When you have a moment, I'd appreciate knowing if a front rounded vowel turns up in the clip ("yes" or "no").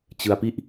no